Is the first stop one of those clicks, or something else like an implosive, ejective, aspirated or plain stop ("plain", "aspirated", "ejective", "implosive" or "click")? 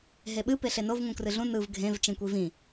implosive